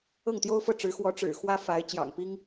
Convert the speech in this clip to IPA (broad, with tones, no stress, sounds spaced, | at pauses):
ɤ˥˩ ŋ t̪ j o˥ ʊ̯ f ɤ˥˩ ʈ͡ʂ ɻ̩˧˥ x w ɔ˧˥ ʈ͡ʂ ɻ̩˨˩ x w ä˥ f a˧˥ ɪ̯ t͡ɕ j ɑ̰˨˩ ŋ p i˥ ŋ